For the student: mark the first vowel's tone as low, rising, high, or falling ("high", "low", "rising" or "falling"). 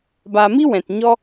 low